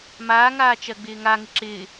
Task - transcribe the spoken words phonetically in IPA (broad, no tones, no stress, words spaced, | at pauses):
maːŋaː t͡ʃɜɡ͡bɪːŋaŋɪ ǁɪː